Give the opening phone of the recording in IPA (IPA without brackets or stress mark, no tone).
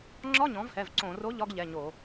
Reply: ŋ͡ǁ